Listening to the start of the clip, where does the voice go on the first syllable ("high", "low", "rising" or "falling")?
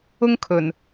high